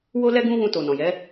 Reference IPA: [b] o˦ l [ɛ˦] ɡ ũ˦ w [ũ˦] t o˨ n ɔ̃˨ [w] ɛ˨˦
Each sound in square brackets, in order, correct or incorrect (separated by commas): incorrect, correct, incorrect, incorrect